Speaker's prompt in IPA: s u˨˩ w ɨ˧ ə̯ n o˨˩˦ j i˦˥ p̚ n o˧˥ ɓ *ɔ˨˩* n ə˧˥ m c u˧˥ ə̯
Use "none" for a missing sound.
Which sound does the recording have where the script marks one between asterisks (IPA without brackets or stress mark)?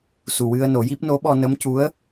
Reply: ɔ˧